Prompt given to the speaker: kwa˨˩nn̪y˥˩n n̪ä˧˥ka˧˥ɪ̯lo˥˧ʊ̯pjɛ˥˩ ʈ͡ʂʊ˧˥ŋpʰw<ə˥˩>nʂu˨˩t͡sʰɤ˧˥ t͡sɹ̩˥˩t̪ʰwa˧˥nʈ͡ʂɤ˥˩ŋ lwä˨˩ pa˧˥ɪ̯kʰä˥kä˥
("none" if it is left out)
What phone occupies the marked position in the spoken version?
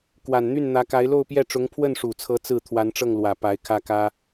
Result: ə˥˩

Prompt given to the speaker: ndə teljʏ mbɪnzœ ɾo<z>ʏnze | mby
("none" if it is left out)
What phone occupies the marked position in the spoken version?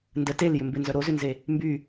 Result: z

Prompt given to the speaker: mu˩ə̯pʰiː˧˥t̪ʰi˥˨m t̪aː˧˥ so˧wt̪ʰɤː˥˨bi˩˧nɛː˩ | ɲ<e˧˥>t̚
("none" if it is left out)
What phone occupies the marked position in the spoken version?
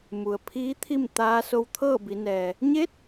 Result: e˧˥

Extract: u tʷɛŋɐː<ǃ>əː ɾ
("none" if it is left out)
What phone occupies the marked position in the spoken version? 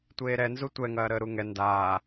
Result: ɾ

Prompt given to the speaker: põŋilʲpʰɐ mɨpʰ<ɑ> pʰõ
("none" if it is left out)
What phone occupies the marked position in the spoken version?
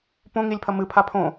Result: a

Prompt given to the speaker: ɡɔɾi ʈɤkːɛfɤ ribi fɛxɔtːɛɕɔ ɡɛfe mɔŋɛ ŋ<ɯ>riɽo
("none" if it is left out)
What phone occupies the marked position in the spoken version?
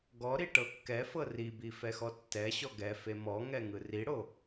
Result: ɯ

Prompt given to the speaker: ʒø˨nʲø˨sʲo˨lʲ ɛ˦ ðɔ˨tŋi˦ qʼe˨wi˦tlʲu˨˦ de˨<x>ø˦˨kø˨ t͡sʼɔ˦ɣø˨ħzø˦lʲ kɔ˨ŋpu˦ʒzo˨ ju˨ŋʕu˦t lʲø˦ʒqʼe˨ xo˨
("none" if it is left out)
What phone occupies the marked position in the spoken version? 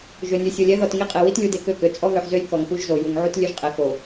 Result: k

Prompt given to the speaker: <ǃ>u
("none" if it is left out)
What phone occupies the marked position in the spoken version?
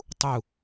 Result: tˤ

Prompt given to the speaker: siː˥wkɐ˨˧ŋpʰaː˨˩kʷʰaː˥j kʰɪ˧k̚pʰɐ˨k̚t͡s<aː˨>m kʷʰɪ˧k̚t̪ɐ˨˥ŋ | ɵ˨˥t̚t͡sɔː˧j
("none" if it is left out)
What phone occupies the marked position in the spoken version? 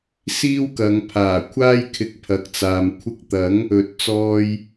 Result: aː˨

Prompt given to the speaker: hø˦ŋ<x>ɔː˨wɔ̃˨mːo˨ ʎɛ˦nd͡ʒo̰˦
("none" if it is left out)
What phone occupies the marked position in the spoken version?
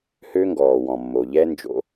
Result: ɡ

